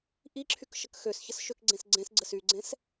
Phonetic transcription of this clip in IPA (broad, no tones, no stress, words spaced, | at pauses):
ʔiǁʰyk ʃəkxøsçəs ʃøkɡ͡ǀɛ̃sɡ͡ǀɛ̃sɡ͡ǀəs yɡ͡ǀɛ̃s